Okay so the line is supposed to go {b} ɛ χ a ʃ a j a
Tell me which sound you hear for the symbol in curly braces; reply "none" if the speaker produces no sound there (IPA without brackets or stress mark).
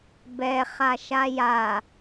b